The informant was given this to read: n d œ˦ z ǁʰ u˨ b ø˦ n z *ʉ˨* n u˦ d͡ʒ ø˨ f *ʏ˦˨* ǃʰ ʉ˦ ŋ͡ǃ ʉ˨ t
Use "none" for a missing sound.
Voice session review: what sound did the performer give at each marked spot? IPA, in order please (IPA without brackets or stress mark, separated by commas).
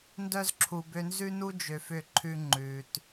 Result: ʉ˦, ʏ˦˨